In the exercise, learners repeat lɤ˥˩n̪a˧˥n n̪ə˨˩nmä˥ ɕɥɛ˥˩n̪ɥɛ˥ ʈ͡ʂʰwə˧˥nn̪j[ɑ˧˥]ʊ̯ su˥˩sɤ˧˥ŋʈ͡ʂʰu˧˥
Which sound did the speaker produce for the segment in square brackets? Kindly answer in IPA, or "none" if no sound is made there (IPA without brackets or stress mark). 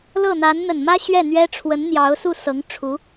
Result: ɑ˧˥